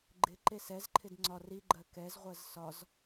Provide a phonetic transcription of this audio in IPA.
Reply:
ɡ͡ǃ ɪ ǃ e s ɛ z ǃʰ ɪ d ŋ͡ǀ ɒ r i ɡ͡ǃ ɜ k ɛ z ʁʷ ɜ z s ɒ z

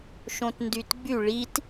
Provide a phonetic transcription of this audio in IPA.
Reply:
ʃ õ t n d y t ɡ͡b y ɭ i t

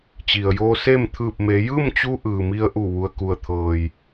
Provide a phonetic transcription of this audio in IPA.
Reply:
t͡ɕ i˩ ə̯ j oː˧ s eː˥˨ m t̪ʰ ɯː˧˩ p̚ m e˩˧ j ɯː˥˨ m t͡ɕ u˧ ʔ ɯː˩ m i˧ ə̯ ʔ u˧˩ ʋ u˩ ə̯ k u˩ ə̯ t̪ʰ ɤː˩ j

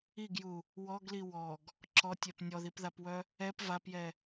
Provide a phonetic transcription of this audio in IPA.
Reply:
i ɡ j u | w ɔ ɡ l i w ɔ ɡ | ǁ ɔ tʲ ɛ p nʲ ɔ ð i p ð a p w œ | ɛ p v a p j ɛ

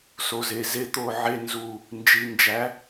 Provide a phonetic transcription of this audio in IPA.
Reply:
s o˨ z e˨ z e˧ t̪ o˦˨ ʕ e˦ n z u˦˨ | n d͡ʒ i˨ n d͡ʒ æ˨˦

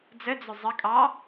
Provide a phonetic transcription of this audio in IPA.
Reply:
d͡z ə d͡z ʊ zˤ ə kʼ ɑ

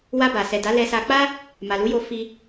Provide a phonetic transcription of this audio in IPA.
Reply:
w a˧ b a˨ s ɛ˨ d a˨˦ l ɛ˧ s a˧ k͡p a˦ | m a˨ l u˨˦ j o˧ f i˧

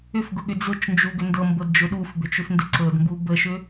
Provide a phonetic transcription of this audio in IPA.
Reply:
ʏ f ɡ ʊ ɠ ʏ d͡z ʊ t͡ʃ n d͡ʒ u ɡ ʏ n d ɤ m b ɤ d d͡ʒ ʊ ɗ u f b ʏ t͡ʃ ʏ f n d ɪ ǀ ɤ d m b u b ə ʃ ʏ

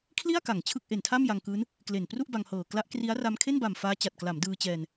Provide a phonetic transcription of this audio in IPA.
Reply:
kʰ l i˥˩ a̯ k a˨˩ ŋ t͡ɕʰ ɯ˥˩ k̚ ʔ e˨˩ n tʰ a˥˩ m j a˧ ŋ k ɯː˦˥ n | k l e˨˩ n p r u˥˩ ʔ b a˧ ŋ h ɤː˨˩ k l a˦˥ ʔ k r i˦˥ a̯ r a˧ m kʰ e˥˩ n b a˨˩ m f aː˦˥ t͡ɕ a˨˩ t̚ k l a˩˦ m d ɯː˧ t͡ɕ ɛː˧ n

